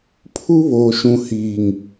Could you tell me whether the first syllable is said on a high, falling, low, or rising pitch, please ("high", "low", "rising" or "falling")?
high